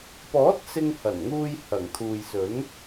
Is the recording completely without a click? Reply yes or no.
yes